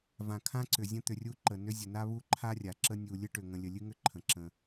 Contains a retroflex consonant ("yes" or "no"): yes